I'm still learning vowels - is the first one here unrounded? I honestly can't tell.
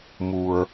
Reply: no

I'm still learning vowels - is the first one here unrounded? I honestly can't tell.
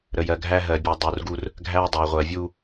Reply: yes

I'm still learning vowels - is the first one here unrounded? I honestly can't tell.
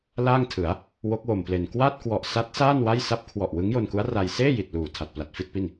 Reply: yes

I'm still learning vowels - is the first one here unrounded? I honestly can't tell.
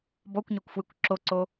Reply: no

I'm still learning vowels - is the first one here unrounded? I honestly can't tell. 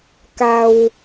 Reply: yes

